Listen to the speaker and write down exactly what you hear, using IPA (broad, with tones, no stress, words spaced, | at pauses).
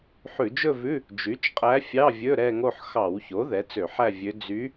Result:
ħʉ˧˩˧d͡ʒɵ˥˧vʉ˧˥˧ | d͡ʒy˩˥t͡ʃqʼæ˧˥fʲɑ˧˥˧vʲɵ˧˥˧ ɾɛ˥˧ŋo˥˧ħ xɑ˧˩˧wço˩˥ ðɛ˩˥t͡sø˧˩˧ħæ˥˧ vʲø˧˥ d͡zy˧˥